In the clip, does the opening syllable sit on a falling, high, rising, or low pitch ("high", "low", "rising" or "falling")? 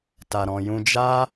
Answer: low